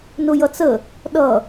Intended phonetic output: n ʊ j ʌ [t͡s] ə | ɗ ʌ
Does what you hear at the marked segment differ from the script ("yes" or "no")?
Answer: no